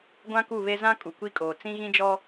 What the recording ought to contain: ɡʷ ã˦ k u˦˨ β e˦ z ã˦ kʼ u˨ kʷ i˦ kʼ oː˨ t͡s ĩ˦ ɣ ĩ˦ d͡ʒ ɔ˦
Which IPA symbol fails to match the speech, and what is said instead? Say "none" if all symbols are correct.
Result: none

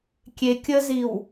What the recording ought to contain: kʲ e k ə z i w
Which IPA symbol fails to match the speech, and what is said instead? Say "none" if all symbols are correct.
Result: k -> kʲ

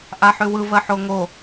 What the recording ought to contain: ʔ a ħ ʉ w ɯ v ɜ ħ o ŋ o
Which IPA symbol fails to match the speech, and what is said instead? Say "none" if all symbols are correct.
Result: none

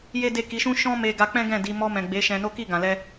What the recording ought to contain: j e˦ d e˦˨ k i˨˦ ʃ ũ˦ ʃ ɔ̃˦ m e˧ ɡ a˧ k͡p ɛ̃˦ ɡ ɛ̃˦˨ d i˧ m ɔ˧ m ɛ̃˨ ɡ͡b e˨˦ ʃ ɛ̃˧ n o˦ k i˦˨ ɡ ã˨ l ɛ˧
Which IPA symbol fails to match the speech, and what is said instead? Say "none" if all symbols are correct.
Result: none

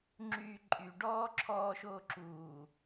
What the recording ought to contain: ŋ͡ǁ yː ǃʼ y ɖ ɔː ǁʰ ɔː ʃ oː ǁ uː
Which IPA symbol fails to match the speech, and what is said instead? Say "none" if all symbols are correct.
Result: none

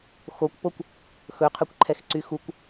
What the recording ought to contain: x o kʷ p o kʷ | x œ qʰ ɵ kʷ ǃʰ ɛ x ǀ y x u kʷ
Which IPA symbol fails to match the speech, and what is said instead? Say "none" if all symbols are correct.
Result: œ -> ɵ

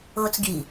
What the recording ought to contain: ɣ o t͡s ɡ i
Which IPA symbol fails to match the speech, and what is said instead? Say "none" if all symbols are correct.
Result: none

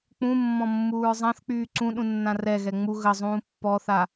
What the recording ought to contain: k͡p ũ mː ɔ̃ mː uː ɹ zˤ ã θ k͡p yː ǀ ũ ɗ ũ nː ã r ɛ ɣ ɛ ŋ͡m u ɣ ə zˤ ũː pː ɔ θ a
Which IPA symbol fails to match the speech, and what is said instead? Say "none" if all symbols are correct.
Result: none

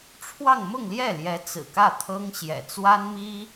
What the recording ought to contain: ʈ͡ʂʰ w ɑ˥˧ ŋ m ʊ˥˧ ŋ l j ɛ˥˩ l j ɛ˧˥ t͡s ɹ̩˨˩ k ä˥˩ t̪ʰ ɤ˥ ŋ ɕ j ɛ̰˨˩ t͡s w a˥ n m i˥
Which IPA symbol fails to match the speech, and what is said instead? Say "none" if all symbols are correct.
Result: none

